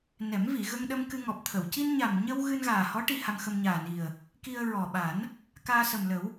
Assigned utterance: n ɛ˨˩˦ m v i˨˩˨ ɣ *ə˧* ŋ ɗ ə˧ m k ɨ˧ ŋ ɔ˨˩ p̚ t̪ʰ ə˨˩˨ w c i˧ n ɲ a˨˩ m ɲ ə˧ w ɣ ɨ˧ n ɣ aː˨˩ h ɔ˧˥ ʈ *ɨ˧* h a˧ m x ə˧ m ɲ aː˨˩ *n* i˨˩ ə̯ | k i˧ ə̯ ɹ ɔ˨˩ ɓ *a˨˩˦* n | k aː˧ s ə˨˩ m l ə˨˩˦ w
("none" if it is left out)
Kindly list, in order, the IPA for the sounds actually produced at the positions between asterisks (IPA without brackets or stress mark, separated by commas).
ə˧, i˧, n, a˨˩˦